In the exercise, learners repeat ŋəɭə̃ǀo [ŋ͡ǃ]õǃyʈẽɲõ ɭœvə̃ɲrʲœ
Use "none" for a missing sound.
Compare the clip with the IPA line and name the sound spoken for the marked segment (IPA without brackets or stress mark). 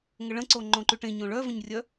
ŋ͡ǃ